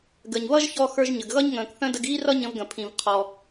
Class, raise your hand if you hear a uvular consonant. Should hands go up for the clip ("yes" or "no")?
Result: yes